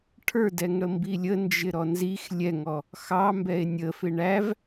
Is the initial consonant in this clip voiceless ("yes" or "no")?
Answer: yes